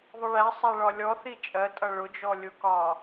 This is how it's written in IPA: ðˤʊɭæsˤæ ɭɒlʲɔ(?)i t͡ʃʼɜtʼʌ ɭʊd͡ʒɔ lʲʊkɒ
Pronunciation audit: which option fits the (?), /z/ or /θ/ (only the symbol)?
θ